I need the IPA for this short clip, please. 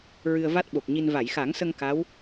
ɹ ɨ˧ ə̯ v a˦˥ t̚ ɓ o˨˩ k̚ ɲ i˧ n v a˨˩˨ j x a˨˩˦ ŋ s ə˧ ŋ k a˧˥ w

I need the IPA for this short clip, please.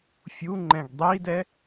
fʲ u ŋ͡ǃ ɛ̃ ɡ dˤ i d ɛ

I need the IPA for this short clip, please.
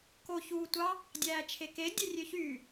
k o ç uː tʷ ɑ | dʲ æː t͡ʃʰ e k e dʲ e rʲ ø ç yː

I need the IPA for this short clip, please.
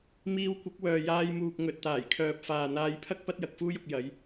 m iː˧ w kʷ ɐ˨˥ k̚ w œː˨ j aː˧ j m uː˨ k̚ ŋ ɵ˨ t̚ t̪ aː˨˩ j kʰ œː˨ p̚ f aː˨ n̪ aː˧ j pʰ ɐ˥ k̚ p ɐ˥ t̚ j ɐ˨˥ k̚ f uː˥ j ʊ˧ k̚ j ɐ˨˧ j

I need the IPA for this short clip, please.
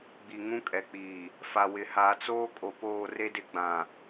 ɡ͡b i˨ ŋ ũ˦ kʼ ɛ˨ k͡p iː˨ | f a˨ w ɪ˨ h a˨ t͡s oː˦ kʼ o˨ p oː˦˨ r e˦ d ɪ˦ ɡ͡b ã˨

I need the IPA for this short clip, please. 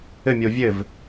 ɘ mʲ o vʲ ɘ v

